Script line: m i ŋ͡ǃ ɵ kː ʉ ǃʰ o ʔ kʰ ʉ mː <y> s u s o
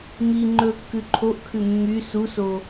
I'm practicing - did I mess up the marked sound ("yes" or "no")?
no